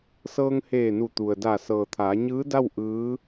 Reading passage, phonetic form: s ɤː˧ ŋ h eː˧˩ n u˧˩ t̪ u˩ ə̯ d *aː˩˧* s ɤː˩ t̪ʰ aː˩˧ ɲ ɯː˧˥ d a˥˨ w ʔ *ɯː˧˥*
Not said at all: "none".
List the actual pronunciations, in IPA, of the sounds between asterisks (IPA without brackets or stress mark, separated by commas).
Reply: aː˧˩, ɯː˧˥